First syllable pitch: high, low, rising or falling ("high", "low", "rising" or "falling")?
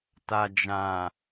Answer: low